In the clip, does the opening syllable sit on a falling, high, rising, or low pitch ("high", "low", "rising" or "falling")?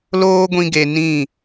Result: high